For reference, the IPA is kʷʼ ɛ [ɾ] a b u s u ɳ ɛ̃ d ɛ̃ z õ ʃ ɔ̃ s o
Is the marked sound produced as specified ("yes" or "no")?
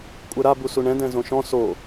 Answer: yes